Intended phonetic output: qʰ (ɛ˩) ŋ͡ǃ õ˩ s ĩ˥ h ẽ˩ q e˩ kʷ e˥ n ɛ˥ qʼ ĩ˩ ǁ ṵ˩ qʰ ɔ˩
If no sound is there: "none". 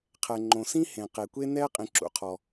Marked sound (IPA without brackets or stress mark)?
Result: ɛ˩